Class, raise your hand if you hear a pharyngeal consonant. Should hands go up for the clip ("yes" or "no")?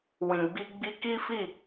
no